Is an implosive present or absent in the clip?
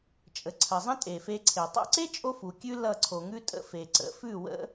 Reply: absent